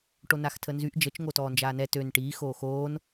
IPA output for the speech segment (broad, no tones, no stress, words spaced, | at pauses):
ʈonaxtʰənzyʔ d͡ʒət͡ʃ ŋotɔːnd͡ʒaːnɛ tøn ʈiː xoːxoːn